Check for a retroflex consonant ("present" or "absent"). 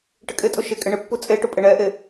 present